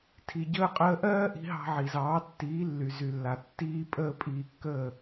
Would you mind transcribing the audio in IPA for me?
tʰ i˩ ɟ əː˧ qʼ əː˧ ʔ ɜː˥ ʔ i̤˧ ɦ ɑ̤˧ ʕ i˩ z ɑː˩˥ tː iː˩˥ lː y˩ z y˩ lː a˩ tː iː˧ pʼ əː˧ pʼ iː˧ kː əː˥˩

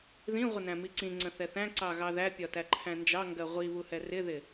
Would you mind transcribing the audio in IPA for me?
ð ĩ ʁʷ ə n æ̃ m i ǀ ĩ ŋ͡ǀ ə̃ θ ɛ θ æ̃ ǀ ɑ ɣ ɑ ð æ pʲ ɒ t æ ǃʰ æ̃ n d͡ʒ ɑ ŋ ɡ ɜ ʁʷ i β u h ɛ r ɪ ð ɪ

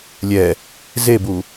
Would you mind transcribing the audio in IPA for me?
lʲ ɛ | z e b u

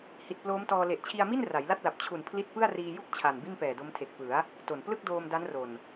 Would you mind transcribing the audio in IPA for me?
h i˨˩ t̚ p l oː˦˥ m t ɔː˧ l e˨˩ ʔ t͡ɕʰ i˧ a̯ m i˥˩ n r a˩˦ j l a˥˩ t̚ l a˨˩ p̚ t͡ɕʰ u˨˩ n pʰ l i˥˩ t̚ p ɯ˥˩ a̯ r iː˧ j u˥˩ k̚ t͡ɕʰ a˨˩ n b i˥˩ n p ɛː˨˩ d o˦˥ m tʰ e˨˩ k̚ p ɯ˩˦ a̯ | t o˨˩ n p l ɯ˥˩ k̚ d oː˧ m d a˦˥ n r o˨˩ n

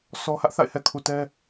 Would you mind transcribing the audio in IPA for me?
s ɔ˦ h ä˦ ʔ θ a̰˦˨ ɪ̯ h ɛ˨ kʰ u˨ t ɛ˦

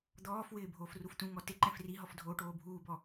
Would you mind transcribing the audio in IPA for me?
d̪ ɔː f w ɪː bʱ oː f r u f t ũ ŋ ɔ t ɪ ǃ ɛ̃ f r i ɦ ɔ f dʱ oː ʈ oː bʱ uː b ɔ

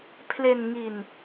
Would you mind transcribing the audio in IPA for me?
pʰ l e˧ n ŋ i˧ n

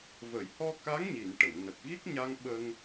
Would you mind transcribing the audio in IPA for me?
v ə˨˩˨ j h ɔ˧ k a˧˥ ŋ ɲ i˨˩˨ n ʈ ə˨˩˨ ŋ n ə˨˩ k̚ ɣ i˦˥ k̚ ɲ a˧ ŋ ɓ ə˧ ŋ

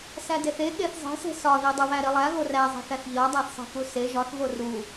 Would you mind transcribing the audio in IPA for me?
s æ d e θ e ɠ e θ zˤ e̤ s e̤ s ɒ ð e dˤ u β æ ɾ i lˠ æ ɣ o r æ zˤ e̤ θ æ θ ʎ ɒ dˤ æ θ sˤ e̤ k u s e ʒ ɒ θ v o r u

